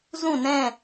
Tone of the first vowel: falling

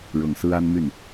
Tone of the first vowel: low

